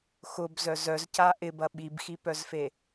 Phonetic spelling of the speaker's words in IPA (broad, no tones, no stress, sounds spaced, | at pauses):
x ʊ b z œ z œ z c a ʔ ɪ b ɐ ɓ i b x i p œ z f e